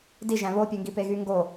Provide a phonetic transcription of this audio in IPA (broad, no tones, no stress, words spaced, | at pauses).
diʒæ̃ βopʲøŋɡi peɣyŋɡo